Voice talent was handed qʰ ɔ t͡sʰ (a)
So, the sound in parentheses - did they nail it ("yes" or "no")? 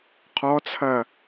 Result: no